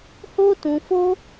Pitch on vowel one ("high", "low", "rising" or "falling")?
high